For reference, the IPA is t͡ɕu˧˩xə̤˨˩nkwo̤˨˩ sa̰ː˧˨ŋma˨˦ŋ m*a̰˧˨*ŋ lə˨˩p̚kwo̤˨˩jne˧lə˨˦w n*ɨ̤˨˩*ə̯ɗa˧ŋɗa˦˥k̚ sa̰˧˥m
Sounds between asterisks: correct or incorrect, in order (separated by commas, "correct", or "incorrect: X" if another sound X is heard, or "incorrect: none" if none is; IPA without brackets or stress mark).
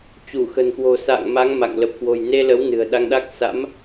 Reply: correct, correct